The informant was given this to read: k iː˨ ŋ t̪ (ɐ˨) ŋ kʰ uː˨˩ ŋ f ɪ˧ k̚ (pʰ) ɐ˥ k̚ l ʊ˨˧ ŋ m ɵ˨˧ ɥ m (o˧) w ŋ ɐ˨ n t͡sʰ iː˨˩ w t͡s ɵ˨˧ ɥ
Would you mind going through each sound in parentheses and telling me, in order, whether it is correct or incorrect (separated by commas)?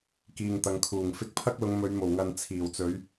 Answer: correct, correct, incorrect